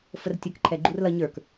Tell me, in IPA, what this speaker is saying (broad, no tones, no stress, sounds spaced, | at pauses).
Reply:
f ə r tʲ ʌ k ǃʰ ɛ ɡ͡ǃ u r l ʌ ɲ ə˞ k